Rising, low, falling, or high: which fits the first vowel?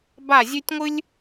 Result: falling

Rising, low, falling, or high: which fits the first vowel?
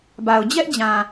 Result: low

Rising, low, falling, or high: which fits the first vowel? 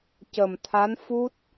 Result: low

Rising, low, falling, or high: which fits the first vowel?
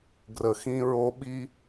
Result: low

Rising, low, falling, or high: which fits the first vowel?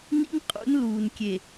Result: high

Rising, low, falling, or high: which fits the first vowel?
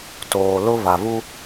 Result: low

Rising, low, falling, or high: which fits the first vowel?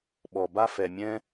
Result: low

